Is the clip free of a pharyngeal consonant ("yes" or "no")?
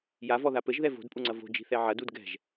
no